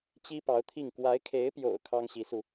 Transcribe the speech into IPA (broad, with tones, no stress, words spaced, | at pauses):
t͡ɕi˥pɑ˧˥ʊ̯t̪ʰi˥˩ŋ kwa˧˥ɪ̯kʰe˧˥ɪ̯pjo̰˨˩ʊ̯ kʰɑ˥ŋɕi˧˥su˧